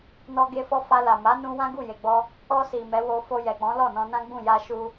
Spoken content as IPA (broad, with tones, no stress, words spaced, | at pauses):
nɔ˦ɡe˦fɔ˦ fa˧la˨ ma˨˦nũ˧ wã˦ɡu˦˨je˨ɡ͡bɔ˧ | ɔ˧si˨ mɛ˨˦wo˧ fo˧jɛ˨k͡pɔ̃˨˦ lɔ˦˨nɔ̃˧nã˦ɡ͡bũ˦˨ ja˧ʃu˧